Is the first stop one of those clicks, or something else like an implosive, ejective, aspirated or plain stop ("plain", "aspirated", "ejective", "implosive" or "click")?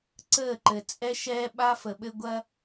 click